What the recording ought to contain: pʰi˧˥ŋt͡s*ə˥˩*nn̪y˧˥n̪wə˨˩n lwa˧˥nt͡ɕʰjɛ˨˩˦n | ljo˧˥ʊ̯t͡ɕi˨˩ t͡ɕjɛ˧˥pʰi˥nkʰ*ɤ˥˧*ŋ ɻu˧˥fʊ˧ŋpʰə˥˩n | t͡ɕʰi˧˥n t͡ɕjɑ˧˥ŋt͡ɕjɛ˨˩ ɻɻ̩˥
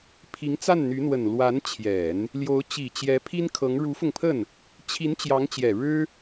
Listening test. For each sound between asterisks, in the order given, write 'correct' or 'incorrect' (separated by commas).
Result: incorrect, incorrect